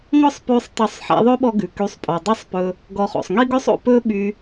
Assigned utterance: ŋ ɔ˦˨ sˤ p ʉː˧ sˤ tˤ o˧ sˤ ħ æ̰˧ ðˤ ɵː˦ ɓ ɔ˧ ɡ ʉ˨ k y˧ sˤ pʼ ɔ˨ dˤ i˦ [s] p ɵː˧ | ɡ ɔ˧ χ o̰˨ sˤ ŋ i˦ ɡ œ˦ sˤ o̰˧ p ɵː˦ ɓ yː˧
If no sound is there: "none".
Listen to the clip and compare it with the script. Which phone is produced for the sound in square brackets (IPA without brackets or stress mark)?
sˤ